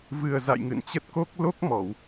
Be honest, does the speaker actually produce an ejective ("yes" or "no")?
no